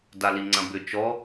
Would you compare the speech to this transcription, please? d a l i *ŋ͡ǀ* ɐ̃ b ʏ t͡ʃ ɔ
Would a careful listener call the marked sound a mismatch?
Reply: no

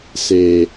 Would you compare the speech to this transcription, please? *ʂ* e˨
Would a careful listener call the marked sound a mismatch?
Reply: yes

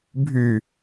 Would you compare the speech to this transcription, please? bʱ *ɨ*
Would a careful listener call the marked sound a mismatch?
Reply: yes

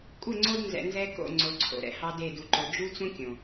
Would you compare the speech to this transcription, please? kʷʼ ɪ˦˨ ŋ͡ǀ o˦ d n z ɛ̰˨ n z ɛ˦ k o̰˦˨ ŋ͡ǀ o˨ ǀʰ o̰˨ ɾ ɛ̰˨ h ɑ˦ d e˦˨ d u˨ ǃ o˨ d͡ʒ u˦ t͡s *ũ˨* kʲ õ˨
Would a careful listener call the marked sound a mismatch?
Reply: yes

